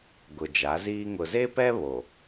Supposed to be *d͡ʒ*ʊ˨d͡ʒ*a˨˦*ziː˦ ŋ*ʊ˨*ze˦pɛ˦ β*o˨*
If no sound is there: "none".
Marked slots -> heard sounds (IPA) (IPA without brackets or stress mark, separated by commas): ɡ, a˨˦, ʊ˨, o˨